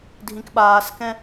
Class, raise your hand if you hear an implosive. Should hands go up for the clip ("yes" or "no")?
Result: yes